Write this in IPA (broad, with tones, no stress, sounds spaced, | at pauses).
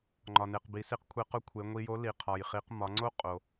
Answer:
ŋ͡ǃ ɒ˩ n e˩ q b i˩˧ s i˧ q kʷʰ e˧ q ʊ˧˥ kʷʰ e˩˧ ŋʷ i˧ j o˧˥ l i˩ qʰ ɒ˩ j χ i˩˧ q m ɒ˩˧ ŋ͡ǀ o˥ qʼ o˩